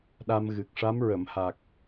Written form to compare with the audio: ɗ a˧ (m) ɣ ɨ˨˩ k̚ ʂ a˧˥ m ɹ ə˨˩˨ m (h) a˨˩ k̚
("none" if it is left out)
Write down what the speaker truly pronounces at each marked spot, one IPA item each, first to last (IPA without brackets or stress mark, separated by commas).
m, h